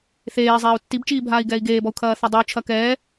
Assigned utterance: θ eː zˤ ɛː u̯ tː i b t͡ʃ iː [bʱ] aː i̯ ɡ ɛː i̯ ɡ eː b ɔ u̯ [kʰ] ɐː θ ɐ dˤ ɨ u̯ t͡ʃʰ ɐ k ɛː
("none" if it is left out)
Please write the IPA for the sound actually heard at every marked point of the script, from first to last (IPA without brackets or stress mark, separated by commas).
bʱ, kʰ